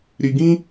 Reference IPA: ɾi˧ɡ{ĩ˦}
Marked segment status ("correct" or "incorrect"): correct